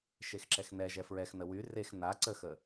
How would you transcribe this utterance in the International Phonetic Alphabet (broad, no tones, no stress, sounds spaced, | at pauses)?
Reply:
ʃ e x ǁ ɛ x n ɛ ʒ ɛ f ɹ ɛ x n ə w y r e x n a ǀ ə x ə